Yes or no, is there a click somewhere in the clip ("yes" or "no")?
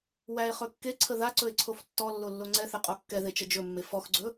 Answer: yes